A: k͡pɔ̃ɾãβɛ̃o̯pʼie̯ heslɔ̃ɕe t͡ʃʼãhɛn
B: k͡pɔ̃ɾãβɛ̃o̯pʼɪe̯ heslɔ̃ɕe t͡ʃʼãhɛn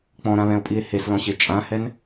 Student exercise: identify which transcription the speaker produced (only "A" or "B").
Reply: A